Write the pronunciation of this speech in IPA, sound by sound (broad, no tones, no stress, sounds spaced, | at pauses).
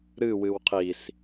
ɾ ɨ w ɨ w qʰ i s